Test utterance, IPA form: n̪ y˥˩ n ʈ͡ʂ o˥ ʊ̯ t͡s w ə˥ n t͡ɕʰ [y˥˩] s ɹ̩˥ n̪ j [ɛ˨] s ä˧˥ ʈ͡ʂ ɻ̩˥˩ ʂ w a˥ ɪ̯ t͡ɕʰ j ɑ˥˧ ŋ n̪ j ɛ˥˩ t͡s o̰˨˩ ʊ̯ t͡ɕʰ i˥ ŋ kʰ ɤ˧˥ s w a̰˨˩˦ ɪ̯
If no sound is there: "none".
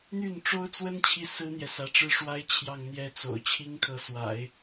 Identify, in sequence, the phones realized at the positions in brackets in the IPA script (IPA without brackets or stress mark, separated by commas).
i˥˩, ɛ˨